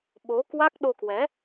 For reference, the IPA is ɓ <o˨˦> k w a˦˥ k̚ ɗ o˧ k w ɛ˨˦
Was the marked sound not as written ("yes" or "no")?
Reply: no